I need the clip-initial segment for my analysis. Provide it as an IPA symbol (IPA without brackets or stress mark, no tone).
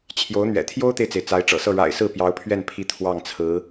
t͡ɕʰ